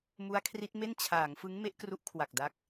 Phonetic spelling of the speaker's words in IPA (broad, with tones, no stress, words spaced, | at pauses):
mu˦˥a̯kʰri˦˥t̚me˥˩n t͡ɕʰaː˩˦ŋfɯ˦˥ŋ me˦˥ʔkru˦˥ʔkʰwa˨˩k̚ da˦˥k̚